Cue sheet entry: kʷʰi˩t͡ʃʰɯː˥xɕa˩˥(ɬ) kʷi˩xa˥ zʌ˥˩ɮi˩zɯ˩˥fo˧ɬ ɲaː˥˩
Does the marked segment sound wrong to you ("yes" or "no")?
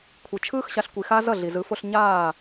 no